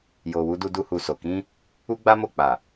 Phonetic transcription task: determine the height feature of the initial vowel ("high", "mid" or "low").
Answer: mid